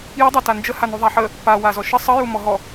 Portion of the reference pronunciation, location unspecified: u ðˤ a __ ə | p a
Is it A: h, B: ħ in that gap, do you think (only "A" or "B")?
B